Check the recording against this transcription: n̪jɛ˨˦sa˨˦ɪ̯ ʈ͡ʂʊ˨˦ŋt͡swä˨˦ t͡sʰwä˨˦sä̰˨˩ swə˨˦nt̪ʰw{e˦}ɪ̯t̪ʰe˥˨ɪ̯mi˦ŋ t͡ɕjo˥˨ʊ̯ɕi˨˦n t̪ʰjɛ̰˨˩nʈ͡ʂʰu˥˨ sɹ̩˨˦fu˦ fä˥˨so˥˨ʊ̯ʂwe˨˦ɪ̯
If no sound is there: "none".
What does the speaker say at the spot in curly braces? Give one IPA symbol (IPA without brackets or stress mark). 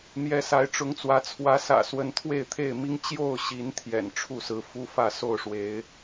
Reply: e˥˨